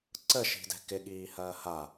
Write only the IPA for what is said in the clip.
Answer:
ǀ ə ʃ i̤ d ɛ̤ k ɪ ɠ iː h ɐː h a

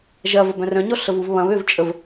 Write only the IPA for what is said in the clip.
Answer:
ʒ ɐ v ə b œ̃ r œ̃ ɲ ɔ ɬ ə v u v β ɐ̃ β ø v t͡ʃʼ ə v

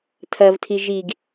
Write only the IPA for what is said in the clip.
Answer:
tʰ ɐ v tʰ i ʒ i ɡ

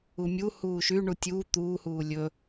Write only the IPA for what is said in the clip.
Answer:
u mʲ u h uː ʃ y ɳ u tʲ uː t̪ uː h uː lʲ ɵ

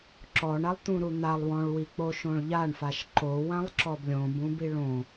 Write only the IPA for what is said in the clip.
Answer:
ǁ ɔ ɳ a lˠ t̪ ũ ɾ u n̪ a lˠ w ɔ̃ ɭ w i k͡p o ʃ õ ɭ ʎ a ɳ f a ʃ ǃ o w ã lˠ ǁ ɔ b lʲ õ b ũ b i ɭ õ

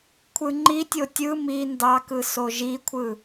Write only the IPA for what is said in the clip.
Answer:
kʷʰ ɯ ŋ͡ǃ i tʲ o tʲ ɯ m i n d ɑ k ɯ s o ʒ i kʷʰ ɯ

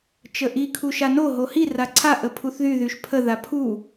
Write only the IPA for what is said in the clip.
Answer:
t͡ʃ ə ʔ i kʰ u ʃ a n o ɦ o h i r a ǀʰ a ʔ ə pʰ u θ ð y ð y ʃ pʰ ə ð a pʰ u

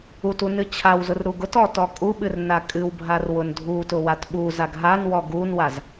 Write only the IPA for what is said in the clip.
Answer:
u t u n ɨ t͡ɕʰ a w z ʊ r ɾ u ɡ ʊ t ɔ t ɔ kʼ u ɓ ɨ r n a kʼ ɨ w bʱ a r w ʊ n dʱ u t ʊ w a t ɓ u z a ɡ ɦ a n w ɔ ɡ u n w a z

